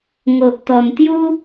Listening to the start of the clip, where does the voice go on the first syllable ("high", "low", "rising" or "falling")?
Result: low